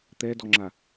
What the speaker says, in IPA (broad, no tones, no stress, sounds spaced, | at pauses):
t̪ ɛ d ɔ ŋ͡ǁ a